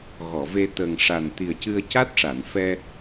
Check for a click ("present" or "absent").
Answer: absent